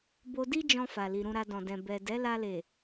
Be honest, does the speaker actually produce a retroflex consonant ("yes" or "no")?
no